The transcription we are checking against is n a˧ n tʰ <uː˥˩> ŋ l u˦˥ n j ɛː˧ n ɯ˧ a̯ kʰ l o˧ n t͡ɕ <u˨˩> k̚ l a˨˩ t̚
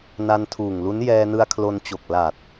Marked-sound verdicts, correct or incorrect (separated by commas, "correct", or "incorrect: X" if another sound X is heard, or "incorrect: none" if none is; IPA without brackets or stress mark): incorrect: uː˨˩, incorrect: o˨˩